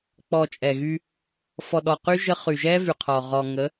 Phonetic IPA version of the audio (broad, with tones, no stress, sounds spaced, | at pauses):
k͡p ɔ˨ t͡ʃʼ ɛ˨ ɣ y˦ | f ɔ˨ ɗ ɔ˨ q y˦ ʒ ə˦ χ y˨ ʒ ɛ˦ v y˨ qʰ ɔ˨ ʁ ɔ˨ ŋ ə˨˦